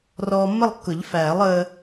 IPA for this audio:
r ɔː˧ mː ə˥˧ lˠ kː ʊ˨˩˦ ʎ f æː˨˩˦ lˠ əː˧

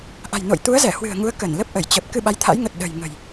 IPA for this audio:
ʔ a̤˨˩ j n o̰˧˨ j t̪ u˨˦ ə̯ z ɛ˧˩ h w ɨ̤˨˩ ə̯ ŋ u˨˦ ə̯ k ə˧˩ n l ə˦˥ p̚ ʔ ə˧˩ j t͡ɕ ə˨˩ p̚ k ɨ˧ ɓ a˨˦ j t̪ʰ a̰˧˥ j ŋ ə˨˩ t̚ ɗ ə̤˨˩ j ŋ ə̤˨˩ j

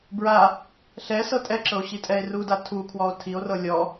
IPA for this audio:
b ɹ a | ɬ ɛ s ɤ tʼ ɛ ǁ ɤ o̯ ɕ i tʼ ɛ e̯ r u d a tʰ u kʰ w ɔ o̯ tʰ i o̯ r ɤ lʲ ɔ

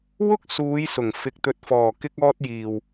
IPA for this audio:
w ʊ˥ k̚ s uː˨˧ j s ʊ˨˩ ŋ f ɪ˨ k̚ t̪ ɵ˨ t̚ f ɔː˨˩ k ɪ˧ k̚ ɔː˧ t̚ j iː˨ w

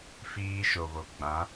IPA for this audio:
f iː˦ ʃ o˨ β o˨ ɡ͡b ã˨˦

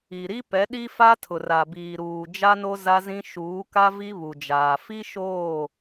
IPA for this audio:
i˨ ɾ i˦ p ɛ˨˦ ɗ i˦ f a˦ tʰ ʊ˨ r a˨ b iː˨ ɾ uː˨ d͡ʒ a˦ n o˦ z a˦ z ĩ˦ ʃ uː˨˦ k a˦ v i˦ β u˨ d͡ʒ aː˨ f i˦ ʃ oː˦˨

